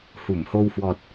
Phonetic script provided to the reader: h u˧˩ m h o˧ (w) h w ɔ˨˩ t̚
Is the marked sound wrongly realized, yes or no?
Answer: no